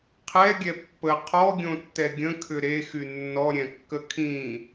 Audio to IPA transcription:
qʰ ɛ ɡʲ ɛ pː ə qʰ ɔ ɡʲ õ tː ɛ ɡʲ ə̃ kʰ ʏ ɾ e x y nː ɔ ɾʲ ɛ̃ kː ə kʰ ĩ

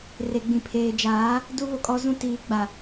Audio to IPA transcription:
r e˨ ɡ͡b ĩ˨ pʰ eː˨ d͡ʒ aː˨˦ | d u˦ β o˨ kʼ ɔ˦ z ũ˦ t iː˨˦ ɡ͡b a˨

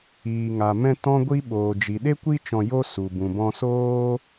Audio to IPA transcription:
iː˨ ŋ a˨ m ɛ̃˧ t ɔ̃˦ ɡʷ i˦ ɓ oː˨ d͡ʒ i˨ ɗ e˦ kʷ i˦ t͡ʃ ɔ̃˧ j o˦ s u˨ b ũ˨ b ɔ̃˧ s oː˦

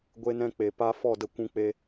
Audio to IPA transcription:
ɡʷ e˧ n ɛ̃˧ k͡p e˨ p a˦ f ɔ˦˨ d ə˧ kʷ ũ˧ k͡p e˧

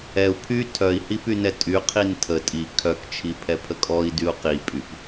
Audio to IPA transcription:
ɛ u̯ pʰ y tʰ œ i̯ h i p y n ɛ tʼ y qʰ i n tʰ ə tʼ i kʰ œ k t͡ʃʰ i pʰ ɛ pʰ ə kʼ ɔ i̯ d y u̯ q i pʼ y p

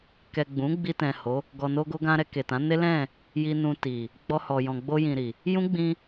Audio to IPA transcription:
k ɛ˨ ɡ͡b ũ˨˦ ɡ͡b i˧ t ɛ̃˨ h o˨˦ | ɡ ɔ˨ n o˧ ɡ o˧ ɡ ã˧ ɾ ɛ˧ k e˨ t ã˨˦ n e˦ l ɛ̃˦˨ | j i˧ n ũ˧ t i˨ | ɡ͡b ɔ˧ h ɔ˨ j ɔ̃˨ ɡ͡b o˧ j ĩ˨ ɾ i˨ | j ũ˦ ɡ͡b ĩ˧

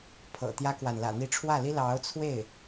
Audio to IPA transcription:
pʰ ɤ̰˨˩ t̪ j ä˥ k w a˨ n l ä̰˨˩ n̪ i˧˥ ʈ͡ʂʰ w ä˥˩ l i˥ l ɑ˧˥ ʊ̯ t͡sʰ w e˥˩ ɪ̯

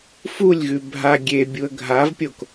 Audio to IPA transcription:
f u lʲ ɣ ʉ bʱ a ɡʲ e bʲ u ə̯ ɡʱ a v pʲ o k

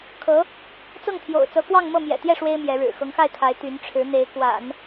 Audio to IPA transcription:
kʰ ɤ˧˥ | t͡s ɤ˥˩ ŋ t̪ʰ j o̰˨˩ ʊ̯ t͡s ɤ˧˥ k w ɑ˥˧ ŋ m ɤ˥˩ m j ɛ̰˨˩ t̪ j ɛ˥˩ ʂ w e˥ ɪ̯ m j ɛ˧˥ ɻ ɻ̩˨˩ x ɤ˧˥ ŋ x a˥˩ ɪ̯ kʰ a˧˥ ɪ̯ t̪ y˧˥ n ʈ͡ʂʰ ɻ̩˧˥ n̪ e˧˥ ɪ̯ k w a̰˨˩˦ n

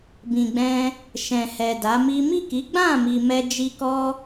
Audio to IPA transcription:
b ĩ˨ ɡ͡b ɛ̃˧ | ʃ ɛ̃˨ h ɛ˨ d a˨˦ m i˦ m i˦˨ k i˨˦ ɡ͡b ã˦˨ m i˨ m ɛ˧ d͡ʒ i˧ k ɔ˦

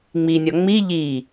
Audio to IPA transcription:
ŋ͡m i nʲ ɒ ŋ͡m i ʎ i

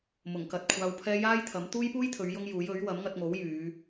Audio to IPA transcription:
m ʊ˨˩ ŋ k ɐ˨ t̚ kʷʰ aː˧ w pʰ ɛː˥ j aː˥ j t̪ʰ ɐ˨˥ m t̪ uː˥ j p uː˥ j t̪ʰ ɵ˨˧ ɥ j ʊ˥ ŋ j uː˨˥ j ɵ˨˥ ɥ w ɐ˨˥ m ŋ ɐ˧ t̚ ŋ o˨˥ w j yː˨˧

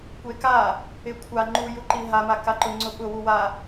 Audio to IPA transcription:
kʷ e k a | ɪ kʷʰ a ŋ͡ǃ u j u ǃ i ɦ a m a k a ǃ ʊ ŋ͡ǀ ʊ ɓ ʊ w u w a

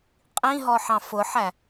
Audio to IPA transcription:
qʼ ĩ ɦ ɔ ħ ɑ̃ f ʊ ħ æ

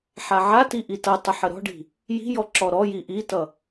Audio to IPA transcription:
ħ a ʕ a t i ʔ i t ʌ tˤ ə ħ ə ɾ ɔ̤ ɖ i̤ | j i̤ j ɔ ǁ ɔ ɾ ɔ j i ʔ i t ʌ

